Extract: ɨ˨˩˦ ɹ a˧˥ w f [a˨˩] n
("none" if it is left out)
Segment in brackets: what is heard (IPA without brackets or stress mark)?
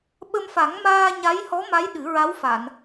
a˨˩˨